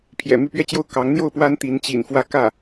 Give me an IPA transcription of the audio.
pʰ j ɛ̰˨˩ m y˥˧ p ɥ ɛ˥˧ t͡ɕ j o˥˩ ʊ̯ k ɑ˧˥ ŋ n̪ j o˥˩ ʊ̯ p w a˥ n t̪ i˧˥ n t͡ɕ ḭ˨˩ n f w ä˥˧ k ä˥˩

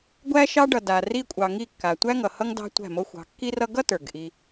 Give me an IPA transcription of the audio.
ɡʷ æ˦ ʃ ɑ˦ ɖ ʌ˨ d a˨ r i˧ kʷʼ ɑ˨ ŋ i˦˨ kː a˨ tʷ æ˦ ŋ ʌ˨ h ʌ˦ ŋ d ɑ̤˧ tʷ æ̤˦˨ m o˦ xʷ ɑ̤˨˦ kː i˧ r ʌ˧ ɡ ʌ˦ t ə˞˨ ɡ ʔ i˧

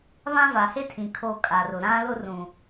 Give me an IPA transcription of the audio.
β ã˦ v a˨ h e˦ tʰ ĩ˨ kʰ o˦ kʼ a˨ r ʊ˨ ɾ ã˦ l ʊ˦ r ũ˨

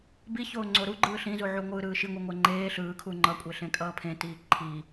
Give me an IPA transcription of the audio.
b i ç oː ŋ͡ǀ o ɾ u ɡ͡ǃ ɯː ɬ ĩ z u ʕ u ŋʷ ɯː ɾ ɯː ʃ i ŋʷ i ŋʷ ɛ ŋ͡ǃ eː ɬ ɯː kʰ u ŋ͡ǃ ʌ kʷʼ e ɬ ẽ kʼ ʌː pʰ ẽ t iː ǃʰ i

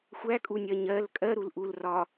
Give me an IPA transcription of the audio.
xʷ æ kʼ u nʲ ɜ ɲ ɜ l kʼ ɜ ɾ u l ʔ u l r ɒ

